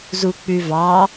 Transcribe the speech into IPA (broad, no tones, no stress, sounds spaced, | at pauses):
z u k͡p ʉ v ɑ